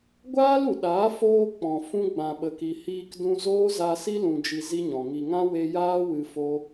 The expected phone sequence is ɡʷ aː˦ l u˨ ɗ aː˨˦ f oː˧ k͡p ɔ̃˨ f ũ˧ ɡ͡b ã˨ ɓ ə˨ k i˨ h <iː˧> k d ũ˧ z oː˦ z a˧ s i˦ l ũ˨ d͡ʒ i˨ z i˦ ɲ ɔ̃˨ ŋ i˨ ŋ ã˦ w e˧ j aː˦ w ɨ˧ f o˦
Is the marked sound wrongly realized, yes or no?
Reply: no